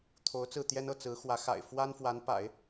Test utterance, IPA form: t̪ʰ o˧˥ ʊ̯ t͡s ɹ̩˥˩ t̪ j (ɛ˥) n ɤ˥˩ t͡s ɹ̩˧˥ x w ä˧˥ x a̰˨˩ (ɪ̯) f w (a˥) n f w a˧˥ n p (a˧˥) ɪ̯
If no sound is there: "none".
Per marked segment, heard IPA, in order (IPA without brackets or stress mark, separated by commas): ɛ˥, ɪ̯, a˥, a̰˨˩˦